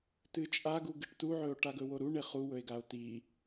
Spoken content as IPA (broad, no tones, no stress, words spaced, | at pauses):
tɨt͡ʃʼaɡu ɡɨʈtuʕɵo̯ ʈaɡɵwoɾu ɳeχuwɵe̯ɡao̯ ti